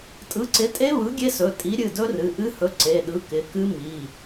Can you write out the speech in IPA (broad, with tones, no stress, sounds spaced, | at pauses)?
tʼ ɯ˨˥ ǀ ɪ˨˥ tʼ e˦˥ β ɯ˨˥ ɡʲ e˦˥ s ɵ˩˧˩ tʼ i˨˥ ɾʲ ɨ˩˧˩ d ɵ˦˥ r ɨ˩˧˩ ʔ ɨ˦˥ h ɵ˨˥ ǀ e˩˧˩ ɗ ɯ˨˥ k ɪ˩˧˩ k ɨ˦˥ m i˩˧˩